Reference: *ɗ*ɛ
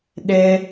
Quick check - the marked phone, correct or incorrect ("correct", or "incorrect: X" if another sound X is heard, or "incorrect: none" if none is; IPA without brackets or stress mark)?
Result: correct